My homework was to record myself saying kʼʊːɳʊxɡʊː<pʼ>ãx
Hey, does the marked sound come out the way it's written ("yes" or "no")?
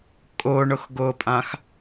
yes